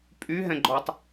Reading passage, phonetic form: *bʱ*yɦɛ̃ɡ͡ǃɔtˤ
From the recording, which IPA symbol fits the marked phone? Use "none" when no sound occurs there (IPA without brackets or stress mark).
pʼ